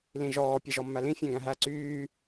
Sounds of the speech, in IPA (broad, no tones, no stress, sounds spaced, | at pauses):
l ĩ ʒ ɔː pʲ e ʒ ɔ mː æ l ĩ fʲ æ̃ ɡ æ̃ ɦ æ ǀ yː